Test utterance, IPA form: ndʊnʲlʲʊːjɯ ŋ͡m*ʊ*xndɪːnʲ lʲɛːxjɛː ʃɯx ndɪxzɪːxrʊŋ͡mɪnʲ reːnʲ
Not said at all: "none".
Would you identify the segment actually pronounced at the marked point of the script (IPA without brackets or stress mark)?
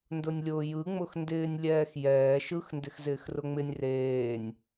ʊ